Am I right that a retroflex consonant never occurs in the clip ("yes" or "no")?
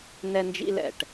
no